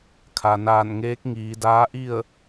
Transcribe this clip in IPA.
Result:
kʰ a˩ n aː˧˩ n ŋ eː˧˥ k̚ ŋ iː˩˧ d aː˧˥ ʔ i˥˨ ə̯

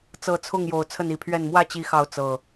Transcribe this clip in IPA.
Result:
t͡s ɤ˨˦ t͡sʰ ʊ˥˨ ŋ j o˨˩ ʊ̯ t͡sʰ ə˥˨ n i˨˩ pʰ ɥ ɛ˥˨ n m w ä˥˨ t͡ɕ i˨˦ x ɑ˨˦ ʊ̯ t͡s ɤ˨˩

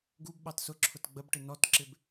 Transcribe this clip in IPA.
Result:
ɡ u b ɓ ɑ t s ʊ ǁʰ ʊ t ɡ͡b ə b ʈ ɪ n ɔ t ǁ ɪ b

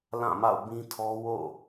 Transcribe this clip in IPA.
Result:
l ã˦˨ m a̰˦˨ ʊ̯ b ĩ˦ tʰ ɔ˦ w o̰˦˨

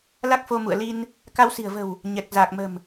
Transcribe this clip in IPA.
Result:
l a˦˥ k̚ f o˧ m ṵ˧˨ ə̯ l i˧ n | k a˧ w s i̤˨˩ ə̯ v ə̤˨˩ w | ɲ ɛ˨˩ k̚ z aː˨˩ k̚ m ə̤˨˩ m

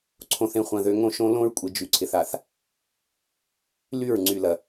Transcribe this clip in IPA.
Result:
ǀʰ õ˨ θ ẽ˨ χʷ ɐ̃˨ ð ø˨ ŋ õ˦ ʃ õ˦ l õ˦ ɹ kʷʼ ɪ˨ d͡ʒ y˨ ǀʰ ɪ˨ θ a˨ θ | l y˦˨ ɹ ŋ͡ǀ y˨ l ɐ˨

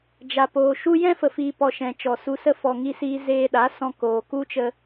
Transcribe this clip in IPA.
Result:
d͡ʒ a˨ p oː˨ ʃ u˦ j ɛ̃˦ f ə˨ f iː˨ p ɔ˨ ʃ ɛ̃˨ t͡ʃ ɔ˨ s u˧ s ə˦ f ɔ˧ ŋ i˦ s iː˦ z eː˧ ɗ a˨˦ s ɔ̃˧ k oː˨ k u˦ t͡ʃ ə˧

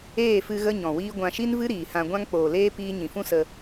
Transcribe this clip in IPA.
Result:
eː˦˨ f ɨ˧ ɣ ə˦ ɲ ɔ̃˨ w iː˦ ɡʷ ã˧ ʃ i˦ n v ɨ˦ ɾ iː˨ h ã˧ ɡʷ ã˦ ŋ k͡p oː˨ l eː˦ p iː˦ ɲ ĩ˨ f ũ˦ s ə˧

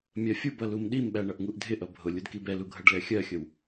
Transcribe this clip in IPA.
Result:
mʲ ɜ fʲ u b ʌ l u m ɗ i m ɓ æ ɳ ʌ ʔ ŋ u ʔ dʱ ɪ ʔ ʌ bʱ ʊ lʲ u d k i b ɛ l u ɡʱ ʌ ɖ l ɛ xʲ ɜ xʲ ə w

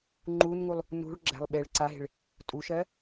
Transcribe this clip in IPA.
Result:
ŋ͡ǃ u n ŋ u lˠ | n ṳ ɭ ɡ͡ǁ æ̤ lˠ ɓ e ɭ ǀ a ɦ e̤ ɭ | tʼ u ʃ ɜ

